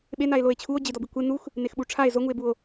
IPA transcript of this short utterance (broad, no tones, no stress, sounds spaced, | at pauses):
ɓ e n a e̯ l o e̯ t͡ɕʰ u o̯ d͡ʑ ɪ d ɔ b i kʷ ɪ n u x | n e x ɓ u ʈ͡ʂʰ a e̯ z o ŋ u e̯ b u o̯